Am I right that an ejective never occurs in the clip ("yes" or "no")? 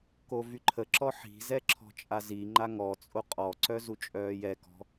no